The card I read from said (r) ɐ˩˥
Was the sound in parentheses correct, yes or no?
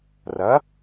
yes